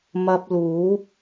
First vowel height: low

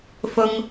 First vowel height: high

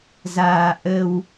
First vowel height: low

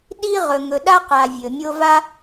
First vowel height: high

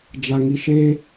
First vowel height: low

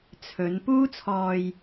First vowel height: mid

